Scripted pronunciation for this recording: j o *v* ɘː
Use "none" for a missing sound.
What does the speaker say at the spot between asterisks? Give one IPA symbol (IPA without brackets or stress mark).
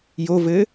v